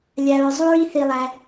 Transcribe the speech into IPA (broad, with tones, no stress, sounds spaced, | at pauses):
lʲ a˧ ɹ zˤ u˦ ɹ i˦ θ i˧ lˠ æ˧